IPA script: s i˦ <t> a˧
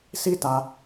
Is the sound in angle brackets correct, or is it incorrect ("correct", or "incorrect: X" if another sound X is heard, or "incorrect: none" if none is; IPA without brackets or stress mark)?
correct